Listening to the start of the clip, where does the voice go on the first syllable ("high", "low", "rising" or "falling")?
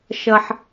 high